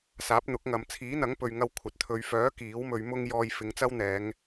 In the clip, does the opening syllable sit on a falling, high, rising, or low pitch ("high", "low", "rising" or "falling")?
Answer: rising